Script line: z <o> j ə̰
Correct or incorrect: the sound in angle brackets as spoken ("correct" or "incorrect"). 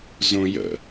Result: incorrect